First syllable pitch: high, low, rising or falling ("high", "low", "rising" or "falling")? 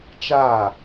falling